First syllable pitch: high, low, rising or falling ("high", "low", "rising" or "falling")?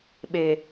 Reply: low